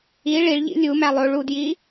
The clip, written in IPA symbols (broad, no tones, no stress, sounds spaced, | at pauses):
i ɭ i ɭ ʎ ḭ lʲ u m æ lˠ o ɭ u d j i